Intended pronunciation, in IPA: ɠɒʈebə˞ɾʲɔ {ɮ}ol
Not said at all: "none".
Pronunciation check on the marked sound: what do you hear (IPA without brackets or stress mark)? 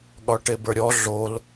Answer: ɮ